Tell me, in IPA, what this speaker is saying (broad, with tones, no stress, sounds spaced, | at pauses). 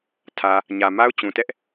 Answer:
tʰ ä˨ | ɲ ä˨ m a˦ ʊ̯ t͡ɕ ũ˨ t ɛ˦ ʔ